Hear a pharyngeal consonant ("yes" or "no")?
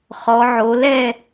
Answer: yes